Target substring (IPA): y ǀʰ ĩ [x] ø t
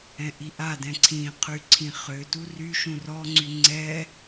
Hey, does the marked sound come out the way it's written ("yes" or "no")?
no